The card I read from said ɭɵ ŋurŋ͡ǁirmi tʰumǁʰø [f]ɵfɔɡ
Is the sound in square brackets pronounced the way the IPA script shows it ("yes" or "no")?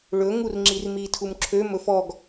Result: no